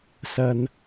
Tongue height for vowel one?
low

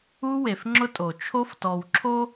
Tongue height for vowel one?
high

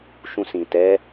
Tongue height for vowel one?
high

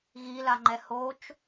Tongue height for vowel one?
high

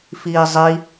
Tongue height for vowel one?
high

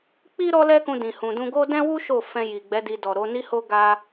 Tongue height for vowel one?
high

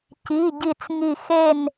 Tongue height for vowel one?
high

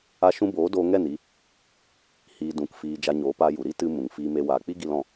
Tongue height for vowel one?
low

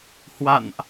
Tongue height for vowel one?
low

